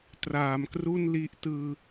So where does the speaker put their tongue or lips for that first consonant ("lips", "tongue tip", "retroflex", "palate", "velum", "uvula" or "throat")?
tongue tip